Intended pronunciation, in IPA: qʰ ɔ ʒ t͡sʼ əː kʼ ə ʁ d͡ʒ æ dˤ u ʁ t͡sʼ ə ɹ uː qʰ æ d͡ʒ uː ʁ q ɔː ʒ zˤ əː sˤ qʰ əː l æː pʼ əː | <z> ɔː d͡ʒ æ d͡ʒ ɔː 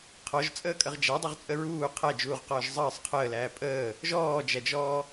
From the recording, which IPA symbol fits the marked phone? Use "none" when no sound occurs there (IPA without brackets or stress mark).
ʒ